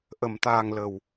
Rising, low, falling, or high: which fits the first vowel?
low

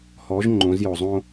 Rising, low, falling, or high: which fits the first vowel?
rising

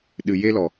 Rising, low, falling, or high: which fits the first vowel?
low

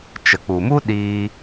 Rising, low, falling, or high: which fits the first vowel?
low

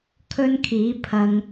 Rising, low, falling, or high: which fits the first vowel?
high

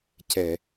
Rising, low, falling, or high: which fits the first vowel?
low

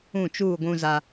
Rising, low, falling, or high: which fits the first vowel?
falling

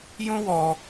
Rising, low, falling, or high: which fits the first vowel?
high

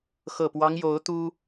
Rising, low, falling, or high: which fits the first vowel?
low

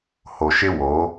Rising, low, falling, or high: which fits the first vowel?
low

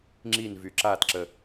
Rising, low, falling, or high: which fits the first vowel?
falling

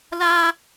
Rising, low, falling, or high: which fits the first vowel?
high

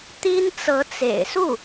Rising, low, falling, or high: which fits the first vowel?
high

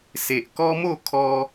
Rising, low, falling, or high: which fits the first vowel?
low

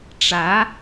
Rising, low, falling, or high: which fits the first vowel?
rising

